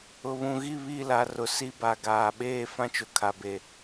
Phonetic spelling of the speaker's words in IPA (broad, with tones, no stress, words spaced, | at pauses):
ʊ˨βũ˨ɣi˦˨ βi˦˨la˨ rʊ˨si˦ ba˨ɡaː˨ɓeː˦˨ fã˦t͡ʃʊ˨kʰa˨be˨